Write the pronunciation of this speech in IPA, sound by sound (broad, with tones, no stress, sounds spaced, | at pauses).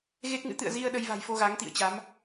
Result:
ɣ e˦˥ k̚ ŋ ɨ̰˧˥ t̪ ɨ̰˧˨ ə̯ z i˧ ə̯ ɗ ə˧ j v a̤˨˩ j f o˧ ɣ a˨˦ ŋ t̪ ḭ˧˨ ə̯ t͡ɕ a˨˦ m